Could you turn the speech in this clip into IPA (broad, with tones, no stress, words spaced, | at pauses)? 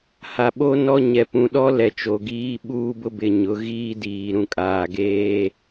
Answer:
ha˨ɓo˦ nɔ˦ ɲɛ˨pũ˨ɗɔ˦lɛ˨ t͡ʃo˨ɡiː˦ɓuː˦bʊ˦ bɪ˨ ɲʊ˨˦ɣiː˦diː˨ ɾũ˨kʼaː˨ɡeː˦